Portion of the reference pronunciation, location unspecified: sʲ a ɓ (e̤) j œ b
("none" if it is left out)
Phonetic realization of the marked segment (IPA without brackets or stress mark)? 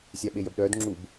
e